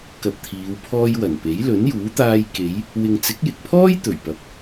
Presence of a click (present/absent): absent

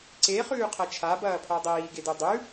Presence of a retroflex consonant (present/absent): absent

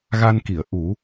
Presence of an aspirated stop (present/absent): absent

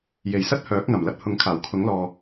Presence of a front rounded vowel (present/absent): present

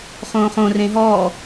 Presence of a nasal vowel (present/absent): present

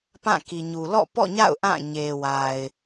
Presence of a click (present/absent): absent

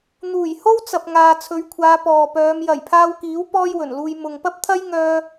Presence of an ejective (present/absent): absent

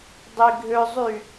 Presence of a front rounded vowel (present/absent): present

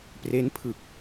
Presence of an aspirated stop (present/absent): present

